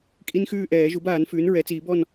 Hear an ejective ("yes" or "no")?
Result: yes